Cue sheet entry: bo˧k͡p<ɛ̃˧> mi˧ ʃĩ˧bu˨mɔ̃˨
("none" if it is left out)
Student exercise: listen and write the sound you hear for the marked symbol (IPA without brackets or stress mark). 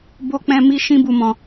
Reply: ɛ̃˧